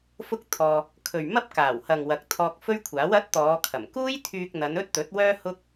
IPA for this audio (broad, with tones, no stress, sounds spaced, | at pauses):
f ʊ˥ k̚ t̪ʰ ɔː˧ | kʰ ɵ˨ ɥ m ɐ˥ p̚ k aː˨˩ w h ɐ˨ ŋ w ɐ˨ k̚ t̪ʰ ɔː˧ k̚ f ɵ˥ ɥ kʷʰ aː˨˥ w ɐ˨˥ t̚ t̪ ɔː˨˧ kʰ ɐ˨˩ m k uː˥ j t̪ʰ yː˧ k̚ n̪ ɐ˨˧ n ɵ˥ t̚ t̪ ɵ˨˥ t̚ w œː˥ h ʊ˥ k̚